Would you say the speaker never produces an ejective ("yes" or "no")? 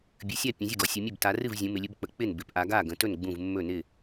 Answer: yes